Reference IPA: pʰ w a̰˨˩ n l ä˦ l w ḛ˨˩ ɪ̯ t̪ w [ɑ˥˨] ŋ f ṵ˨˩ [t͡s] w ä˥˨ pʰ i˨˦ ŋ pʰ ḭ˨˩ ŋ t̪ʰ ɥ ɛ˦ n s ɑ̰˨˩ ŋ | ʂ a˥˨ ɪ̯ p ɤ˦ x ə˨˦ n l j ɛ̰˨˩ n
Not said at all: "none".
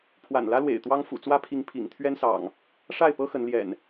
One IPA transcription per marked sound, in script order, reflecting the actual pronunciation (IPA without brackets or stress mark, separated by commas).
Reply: ɑ˦, t͡s